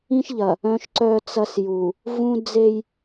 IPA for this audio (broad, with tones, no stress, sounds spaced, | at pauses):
ĩ˦ ʃ ʎ ɐ˨ | œ̃˦ ʃ ǀ œː˦ t͡s ɐ˦ s j u˨ | v ũ˦ d͡z e˦ j